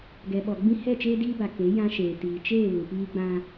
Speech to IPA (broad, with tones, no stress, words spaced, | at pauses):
ɡɛ˨ɓɔ˨ ɡ͡bĩ˦ hɛ˦˨t͡ʃeː˦diː˦ba˨ ke˨˦ jã˦ʃeː˨ tiː˨ t͡ʃeː˦˨βu˨ piː˦ɡ͡bã˦